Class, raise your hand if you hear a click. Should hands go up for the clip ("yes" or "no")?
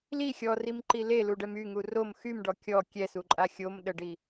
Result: yes